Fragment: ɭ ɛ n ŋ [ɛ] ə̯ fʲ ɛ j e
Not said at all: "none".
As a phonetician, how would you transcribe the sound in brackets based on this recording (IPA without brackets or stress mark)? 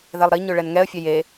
ɛ